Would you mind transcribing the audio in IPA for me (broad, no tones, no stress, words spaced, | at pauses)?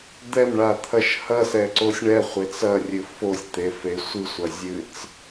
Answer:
d̪ɛmɳat̪ʰɐʃ hɐsɛǀosʲ ɳɛχʷet͡s ɐrʲɨ fosʲt̪efe sʷɨsʷɐzʲɨt͡s